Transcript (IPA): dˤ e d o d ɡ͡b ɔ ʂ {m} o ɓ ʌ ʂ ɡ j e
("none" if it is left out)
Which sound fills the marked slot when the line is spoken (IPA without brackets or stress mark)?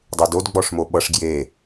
m